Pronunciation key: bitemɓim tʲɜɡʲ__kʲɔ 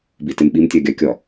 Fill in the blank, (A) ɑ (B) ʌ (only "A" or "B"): A